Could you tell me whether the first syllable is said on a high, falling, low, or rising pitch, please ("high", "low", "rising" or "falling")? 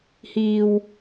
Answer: low